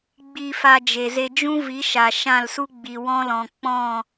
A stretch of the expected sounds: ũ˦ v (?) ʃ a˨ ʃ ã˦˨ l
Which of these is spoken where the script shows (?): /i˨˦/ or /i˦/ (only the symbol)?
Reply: i˨˦